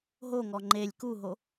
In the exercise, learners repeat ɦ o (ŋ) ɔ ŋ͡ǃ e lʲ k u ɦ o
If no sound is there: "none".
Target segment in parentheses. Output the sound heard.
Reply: ŋ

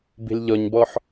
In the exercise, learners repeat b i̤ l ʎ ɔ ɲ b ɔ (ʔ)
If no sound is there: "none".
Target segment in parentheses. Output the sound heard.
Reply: ħ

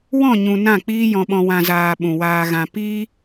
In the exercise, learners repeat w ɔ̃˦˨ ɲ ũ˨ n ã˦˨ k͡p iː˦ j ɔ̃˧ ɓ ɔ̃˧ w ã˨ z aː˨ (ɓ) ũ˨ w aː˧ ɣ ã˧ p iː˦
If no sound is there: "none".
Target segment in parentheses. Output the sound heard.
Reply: ɓ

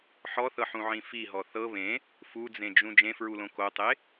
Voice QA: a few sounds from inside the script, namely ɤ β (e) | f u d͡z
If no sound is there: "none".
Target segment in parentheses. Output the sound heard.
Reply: ẽ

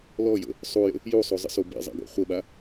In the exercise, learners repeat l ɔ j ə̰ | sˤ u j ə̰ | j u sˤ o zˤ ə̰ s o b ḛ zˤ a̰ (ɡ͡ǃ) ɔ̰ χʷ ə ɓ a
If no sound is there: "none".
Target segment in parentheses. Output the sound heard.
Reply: ɡ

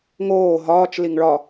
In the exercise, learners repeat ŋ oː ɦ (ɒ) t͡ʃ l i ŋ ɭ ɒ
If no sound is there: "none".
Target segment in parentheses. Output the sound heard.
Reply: ɒː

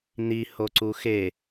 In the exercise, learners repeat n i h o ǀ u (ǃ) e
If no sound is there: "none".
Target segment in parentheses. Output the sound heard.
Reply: x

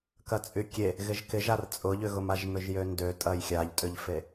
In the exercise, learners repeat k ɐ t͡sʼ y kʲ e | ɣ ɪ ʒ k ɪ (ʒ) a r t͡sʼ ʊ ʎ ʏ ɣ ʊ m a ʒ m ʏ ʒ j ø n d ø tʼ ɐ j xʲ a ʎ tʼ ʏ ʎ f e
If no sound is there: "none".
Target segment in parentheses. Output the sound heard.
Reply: ʒ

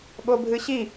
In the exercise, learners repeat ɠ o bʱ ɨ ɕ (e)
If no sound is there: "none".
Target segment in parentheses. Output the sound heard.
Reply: i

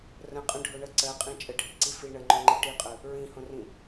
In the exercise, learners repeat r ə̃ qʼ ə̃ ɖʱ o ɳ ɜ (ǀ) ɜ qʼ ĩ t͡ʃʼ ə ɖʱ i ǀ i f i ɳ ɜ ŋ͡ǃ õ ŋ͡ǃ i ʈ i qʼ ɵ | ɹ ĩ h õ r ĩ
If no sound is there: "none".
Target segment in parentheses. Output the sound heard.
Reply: ǀ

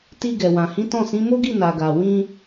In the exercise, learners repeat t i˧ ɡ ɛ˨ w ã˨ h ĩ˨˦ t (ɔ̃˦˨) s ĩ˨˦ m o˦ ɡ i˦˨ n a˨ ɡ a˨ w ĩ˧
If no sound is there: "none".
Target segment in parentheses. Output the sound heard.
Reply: ɔ̃˦˨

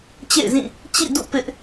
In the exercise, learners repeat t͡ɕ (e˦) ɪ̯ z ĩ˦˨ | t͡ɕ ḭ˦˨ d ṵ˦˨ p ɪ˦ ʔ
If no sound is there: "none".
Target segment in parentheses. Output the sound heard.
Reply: ḛ˦˨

